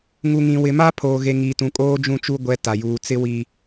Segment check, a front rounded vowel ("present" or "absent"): absent